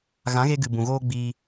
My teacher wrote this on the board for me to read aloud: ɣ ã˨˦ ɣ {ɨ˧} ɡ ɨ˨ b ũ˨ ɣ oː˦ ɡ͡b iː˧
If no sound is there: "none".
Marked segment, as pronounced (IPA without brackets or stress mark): e˧